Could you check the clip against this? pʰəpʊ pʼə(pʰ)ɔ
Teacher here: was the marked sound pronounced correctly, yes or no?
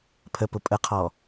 no